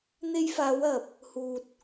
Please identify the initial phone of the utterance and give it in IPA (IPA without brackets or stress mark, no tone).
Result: n̪